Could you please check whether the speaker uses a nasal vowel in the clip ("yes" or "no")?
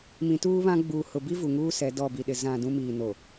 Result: yes